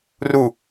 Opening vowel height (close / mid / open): close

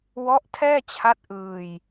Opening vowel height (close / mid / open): mid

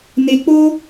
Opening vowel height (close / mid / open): mid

